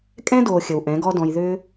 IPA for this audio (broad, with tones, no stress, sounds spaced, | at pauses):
kʼ ɛ̃˦ d oː˨ xʲ ə˨ w ʔ ɛ̃˨˦ ɡ ɔ˦ d ɔ̃˧ j ð ʏː˧